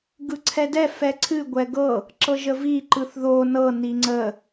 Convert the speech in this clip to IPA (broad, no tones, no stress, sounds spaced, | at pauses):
ɡ ɯ ǀʰ ɛ d ɛ f ɛ ǀʰ ɨ ɡʷ ɛ ɡ ɤ | ǁ ɤ ʒ ə v i ǃ ɯ θ ð o n ɤ n i ŋ͡ǀ ə